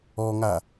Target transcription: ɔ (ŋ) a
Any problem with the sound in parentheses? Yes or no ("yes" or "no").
no